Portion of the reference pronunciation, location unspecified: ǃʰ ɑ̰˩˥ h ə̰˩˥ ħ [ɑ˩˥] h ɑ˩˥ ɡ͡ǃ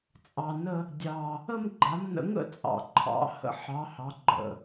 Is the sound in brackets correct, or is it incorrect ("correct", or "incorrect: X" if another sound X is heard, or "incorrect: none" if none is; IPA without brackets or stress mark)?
correct